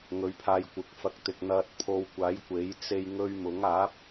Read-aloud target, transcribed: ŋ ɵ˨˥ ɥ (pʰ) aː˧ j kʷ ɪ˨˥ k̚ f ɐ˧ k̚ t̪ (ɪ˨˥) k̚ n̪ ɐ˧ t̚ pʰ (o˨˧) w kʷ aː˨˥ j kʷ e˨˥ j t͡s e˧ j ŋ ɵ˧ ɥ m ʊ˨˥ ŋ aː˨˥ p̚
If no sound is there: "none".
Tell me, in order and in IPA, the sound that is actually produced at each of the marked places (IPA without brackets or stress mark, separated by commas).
pʰ, ɪ˨, o˧